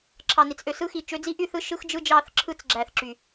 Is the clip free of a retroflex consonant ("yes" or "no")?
yes